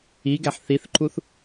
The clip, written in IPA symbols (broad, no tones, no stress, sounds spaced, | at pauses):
i ɡ æ ħ θ i θ ǃ u θ